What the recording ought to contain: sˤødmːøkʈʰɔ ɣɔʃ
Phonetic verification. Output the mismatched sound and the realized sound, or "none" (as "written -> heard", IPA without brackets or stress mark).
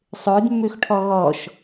k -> x